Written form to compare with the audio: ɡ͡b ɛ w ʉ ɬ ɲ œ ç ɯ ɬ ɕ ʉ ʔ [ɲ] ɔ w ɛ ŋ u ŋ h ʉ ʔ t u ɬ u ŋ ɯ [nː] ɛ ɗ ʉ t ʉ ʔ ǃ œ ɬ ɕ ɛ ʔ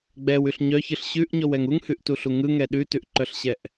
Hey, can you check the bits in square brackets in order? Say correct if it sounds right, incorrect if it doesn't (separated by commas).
correct, incorrect